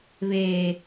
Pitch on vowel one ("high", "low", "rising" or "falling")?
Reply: low